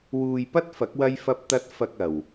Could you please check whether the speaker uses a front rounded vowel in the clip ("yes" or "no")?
no